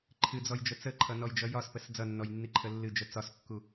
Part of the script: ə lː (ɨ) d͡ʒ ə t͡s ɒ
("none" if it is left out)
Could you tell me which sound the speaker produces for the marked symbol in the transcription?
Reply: ɨ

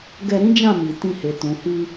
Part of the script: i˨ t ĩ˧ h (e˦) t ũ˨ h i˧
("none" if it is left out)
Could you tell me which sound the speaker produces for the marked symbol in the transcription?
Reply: e˨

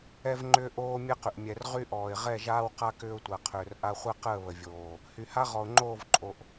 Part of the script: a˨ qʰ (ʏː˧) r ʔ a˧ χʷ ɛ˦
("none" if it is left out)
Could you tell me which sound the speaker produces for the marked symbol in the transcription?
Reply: ʏː˨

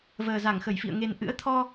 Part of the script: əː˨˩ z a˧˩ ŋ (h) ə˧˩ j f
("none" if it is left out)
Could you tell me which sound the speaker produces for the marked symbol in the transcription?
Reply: x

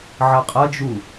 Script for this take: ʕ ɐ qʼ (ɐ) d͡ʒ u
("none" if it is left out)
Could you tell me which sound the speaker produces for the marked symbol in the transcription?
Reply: ɐ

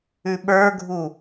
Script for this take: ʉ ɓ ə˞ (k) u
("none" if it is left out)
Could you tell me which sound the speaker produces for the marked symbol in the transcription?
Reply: ɡʱ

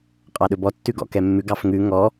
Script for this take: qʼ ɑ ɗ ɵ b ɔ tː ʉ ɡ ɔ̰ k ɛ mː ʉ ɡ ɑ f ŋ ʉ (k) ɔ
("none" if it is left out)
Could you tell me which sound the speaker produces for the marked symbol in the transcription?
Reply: ŋ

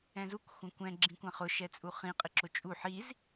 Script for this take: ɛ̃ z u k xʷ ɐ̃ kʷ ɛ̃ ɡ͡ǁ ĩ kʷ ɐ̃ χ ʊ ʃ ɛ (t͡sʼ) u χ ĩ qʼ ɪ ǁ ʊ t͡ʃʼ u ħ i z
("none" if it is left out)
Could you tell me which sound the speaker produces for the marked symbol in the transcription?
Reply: t͡sʼ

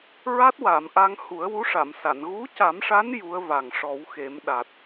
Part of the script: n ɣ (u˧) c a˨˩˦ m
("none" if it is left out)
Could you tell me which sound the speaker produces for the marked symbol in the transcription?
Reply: u˧˥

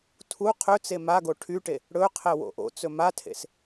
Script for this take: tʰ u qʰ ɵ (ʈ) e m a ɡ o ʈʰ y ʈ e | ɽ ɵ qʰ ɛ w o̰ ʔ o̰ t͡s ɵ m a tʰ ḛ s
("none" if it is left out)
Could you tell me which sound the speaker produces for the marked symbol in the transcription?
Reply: t͡s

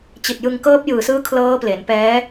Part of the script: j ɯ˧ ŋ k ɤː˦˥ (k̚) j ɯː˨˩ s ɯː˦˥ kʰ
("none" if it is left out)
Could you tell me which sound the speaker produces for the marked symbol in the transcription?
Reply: p̚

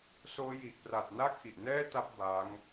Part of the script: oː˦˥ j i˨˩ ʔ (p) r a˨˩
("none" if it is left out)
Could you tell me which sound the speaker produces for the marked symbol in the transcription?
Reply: p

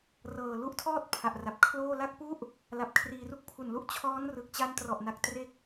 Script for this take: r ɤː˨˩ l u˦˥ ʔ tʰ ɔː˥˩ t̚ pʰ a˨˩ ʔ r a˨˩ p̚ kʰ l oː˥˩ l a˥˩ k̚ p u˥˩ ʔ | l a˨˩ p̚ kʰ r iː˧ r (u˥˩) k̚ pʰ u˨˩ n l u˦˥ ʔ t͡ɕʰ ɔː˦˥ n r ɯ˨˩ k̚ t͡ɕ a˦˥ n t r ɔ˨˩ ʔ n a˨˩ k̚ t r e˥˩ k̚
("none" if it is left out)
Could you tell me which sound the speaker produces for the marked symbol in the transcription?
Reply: u˥˩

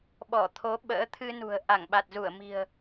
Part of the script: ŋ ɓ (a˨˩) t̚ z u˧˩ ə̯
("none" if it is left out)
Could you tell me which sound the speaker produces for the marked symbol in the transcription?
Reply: a˨˩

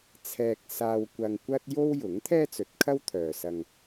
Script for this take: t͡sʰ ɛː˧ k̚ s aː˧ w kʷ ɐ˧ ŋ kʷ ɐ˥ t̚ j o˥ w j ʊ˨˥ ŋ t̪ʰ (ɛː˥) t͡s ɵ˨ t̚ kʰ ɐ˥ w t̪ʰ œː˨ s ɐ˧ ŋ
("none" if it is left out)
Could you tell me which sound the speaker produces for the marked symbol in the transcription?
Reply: ɛː˥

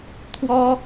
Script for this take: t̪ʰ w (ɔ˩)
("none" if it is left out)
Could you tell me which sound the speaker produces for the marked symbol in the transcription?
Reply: ɔ˥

